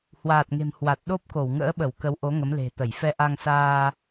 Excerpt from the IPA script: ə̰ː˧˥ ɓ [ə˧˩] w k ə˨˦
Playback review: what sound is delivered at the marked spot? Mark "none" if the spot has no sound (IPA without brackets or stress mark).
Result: ə˧˩